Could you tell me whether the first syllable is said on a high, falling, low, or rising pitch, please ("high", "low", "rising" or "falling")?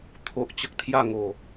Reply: low